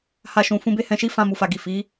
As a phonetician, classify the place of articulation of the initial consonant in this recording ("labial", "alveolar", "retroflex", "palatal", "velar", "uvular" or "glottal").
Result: glottal